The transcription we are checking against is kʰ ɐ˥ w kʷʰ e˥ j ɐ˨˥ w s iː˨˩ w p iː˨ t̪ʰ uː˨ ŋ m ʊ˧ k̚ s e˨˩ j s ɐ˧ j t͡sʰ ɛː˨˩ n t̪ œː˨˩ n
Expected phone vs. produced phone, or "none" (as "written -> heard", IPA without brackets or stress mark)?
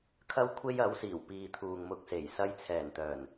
none